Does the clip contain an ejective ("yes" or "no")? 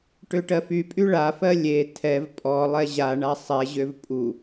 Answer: yes